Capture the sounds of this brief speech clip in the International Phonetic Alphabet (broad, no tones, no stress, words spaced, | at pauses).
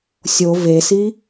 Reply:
sʲo vesi